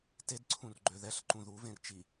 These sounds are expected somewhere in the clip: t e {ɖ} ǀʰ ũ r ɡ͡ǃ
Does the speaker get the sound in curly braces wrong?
yes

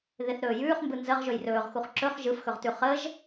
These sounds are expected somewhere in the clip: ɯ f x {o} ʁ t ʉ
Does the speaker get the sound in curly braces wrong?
yes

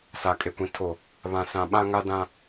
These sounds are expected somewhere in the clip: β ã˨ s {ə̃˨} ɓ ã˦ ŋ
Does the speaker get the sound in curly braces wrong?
yes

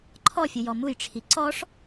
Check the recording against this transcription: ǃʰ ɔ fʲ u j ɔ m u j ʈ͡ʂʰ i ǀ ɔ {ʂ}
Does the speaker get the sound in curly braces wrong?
no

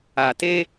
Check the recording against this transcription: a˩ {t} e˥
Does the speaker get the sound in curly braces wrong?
no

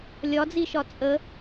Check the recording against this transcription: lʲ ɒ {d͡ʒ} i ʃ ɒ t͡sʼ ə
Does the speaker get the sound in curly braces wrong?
yes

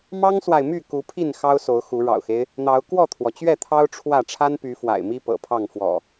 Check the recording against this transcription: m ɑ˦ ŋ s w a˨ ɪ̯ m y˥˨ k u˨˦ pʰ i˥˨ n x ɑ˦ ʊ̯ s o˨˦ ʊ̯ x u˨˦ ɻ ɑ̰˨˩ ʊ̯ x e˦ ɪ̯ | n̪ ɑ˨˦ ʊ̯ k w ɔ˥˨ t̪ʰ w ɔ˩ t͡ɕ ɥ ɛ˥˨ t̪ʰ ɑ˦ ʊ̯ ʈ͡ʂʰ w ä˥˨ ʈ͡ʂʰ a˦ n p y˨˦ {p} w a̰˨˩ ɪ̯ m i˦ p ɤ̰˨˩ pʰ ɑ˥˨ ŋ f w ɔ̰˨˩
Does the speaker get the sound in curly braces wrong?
yes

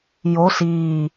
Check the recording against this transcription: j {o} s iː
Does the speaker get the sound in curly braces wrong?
no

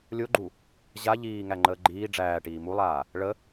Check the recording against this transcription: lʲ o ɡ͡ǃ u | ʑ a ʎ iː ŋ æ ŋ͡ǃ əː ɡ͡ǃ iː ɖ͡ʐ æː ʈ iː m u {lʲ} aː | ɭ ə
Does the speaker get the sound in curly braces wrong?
yes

